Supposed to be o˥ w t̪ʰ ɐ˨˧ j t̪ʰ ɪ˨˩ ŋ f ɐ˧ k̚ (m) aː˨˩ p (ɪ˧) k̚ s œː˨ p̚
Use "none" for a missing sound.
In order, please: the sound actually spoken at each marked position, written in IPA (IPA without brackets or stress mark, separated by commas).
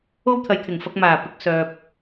m, ɪ˧